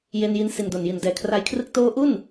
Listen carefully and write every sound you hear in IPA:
j e˧ n j i˧ n s i˨˩ n d o˨˩ n j i˨˩ n d ɛː˩˦ kʰ r a˧ j kʰ r ɯ˦˥ k̚ t oː˦˥ ʔ u˥˩ n

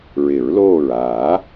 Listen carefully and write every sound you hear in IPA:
ɹ ɪ˨˩˦ ɹ l oː˧˩ ɹ aː˨˩˦

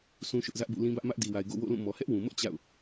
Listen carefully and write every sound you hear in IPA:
s ũ˦ ʃ ʊ˦ ʔ z ä˦ ʔ b ṵ˦˨ l ĩ˦ b ä˦ ʔ m ä˦ ʔ d i˨ w a˨ ɪ̯ ɡ o̰˦˨ w o̰˦˨ l ũ˦˨ m ɔ˨ h ɛ˦ ʔ w ũ˨ m ʊ˦ ʔ t͡ɕ a̰˦˨ ʊ̯

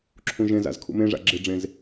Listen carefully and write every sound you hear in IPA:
ǁʰ ũ ʒ ẽ z a̰ z kʰ ṵ m ẽ ʐ a̰ ɡ͡ǁ ɪ ɖ͡ʐ ẽ z

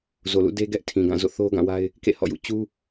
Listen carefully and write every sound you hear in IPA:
z o˨ l ṵ˦˨ d e˦ ɡ ɛ˦ ʔ tʰ ĩ˨ ɡ ã˦˨ z o̰˦˨ θ o˦ ɡ ã˦˨ w a˦ ɪ̯ | k ḛ˦˨ h ɔ̰˦˨ j ṵ˦˨ t͡ɕ u˦

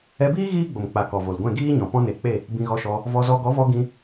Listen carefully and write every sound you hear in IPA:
ɛ˧ b iː˦ ɣ iː˦ ɡ͡b o˨ m k͡p a˨ k ɔ˨ v o˨ l ɡʷ ɛ̃˦˨ ɡ iː˦ ɲ ɔ̃˨ p ɔ̃˦ n e˨˦ k͡p e˦˨ | b ĩ˧ ɣ ɔ˧ ʃ ɔ˧ | v ɔ˧ z ɔ˧ ɡ ɔ˨˦ v ɔ˧ ɡ ĩ˧

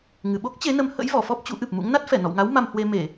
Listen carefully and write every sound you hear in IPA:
ŋ ɨ˨˩ ɓ o˦˥ k̚ t͡ɕ e˨˦ n ə˨˦ m h ə̰˧˥ j v ɔ˧˩ f ɔ˦˥ p̚ t͡ɕ ṵ˧˥ ʔ ɨ˨˩ p̚ m ṵ˧˥ ŋ n a˦˥ t̚ f ɛ˧˩ n ɔ̰˧˨ w ŋ a˨˦ w m a˧ m h w e˧ m e˧˩˨

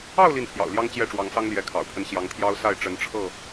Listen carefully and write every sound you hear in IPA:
ɑ˥˨ ʊ̯ l i˥˨ n pʰ j ɑ̰˨˩ ʊ̯ l j ɑ˦ ŋ t͡ɕ j ɛ˥˨ ʈ͡ʂ w ɑ˨˦ ŋ s ɑ˦ ŋ l j ɛ˨˦ kʰ ɑ̰˨˩ ʊ̯ pʰ ə˦ n ɕ j ɑ˨˦ ŋ t̪ʰ j ɑ˦ ʊ̯ s a˥˨ ɪ̯ ʈ͡ʂ ə˨˦ n ʈ͡ʂʰ ɤ˥˨

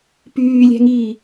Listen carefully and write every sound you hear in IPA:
p yː lʲ æ̤ ŋ iː

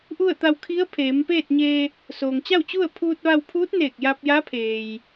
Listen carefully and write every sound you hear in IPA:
ʔ u˥˨ ə̯ t̪ a˧ w kʰ i˧˥ ə̯ pʰ eː˩˧ m p eː˥˨ t̚ ɲ eː˧ | s oː˩ ŋ t͡ɕ a˥˨ w t͡ɕ u˥˨ ə̯ pʰ uː˧ t̚ ʋ a˧ w pʰ uː˧˥ t̚ n eː˧˩ k̚ j a˧ p̚ j a˧˥ pʰ eː˩ j

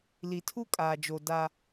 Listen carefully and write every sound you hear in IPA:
l i˨ tʰ u˦ kʼ aː˨ d͡ʒ o˨ d a˦

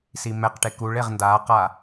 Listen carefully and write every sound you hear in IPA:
s i m ɛ q ʈ e k u ɭ e ʁ n d a q a

